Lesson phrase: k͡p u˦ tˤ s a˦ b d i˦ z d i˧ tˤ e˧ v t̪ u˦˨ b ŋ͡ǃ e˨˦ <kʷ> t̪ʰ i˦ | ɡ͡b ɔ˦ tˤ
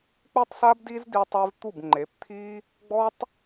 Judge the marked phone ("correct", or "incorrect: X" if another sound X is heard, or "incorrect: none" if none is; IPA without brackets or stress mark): incorrect: p